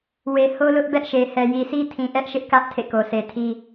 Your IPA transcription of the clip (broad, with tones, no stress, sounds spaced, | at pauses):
w e˨ h o˦ l ʊ˦ ʔ b ɛ˦ ʔ ʃ e˨ h ɛ˨ j i˨ s i˦ tʰ ĩ˨ ʔ ɛ˦ ʔ ʃ ɪ˦ ʔ k ä˦ ʔ tʰ ḛ˦˨ k o˨ s e˨ tʰ i˦